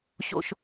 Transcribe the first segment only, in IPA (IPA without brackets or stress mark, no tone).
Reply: ɕ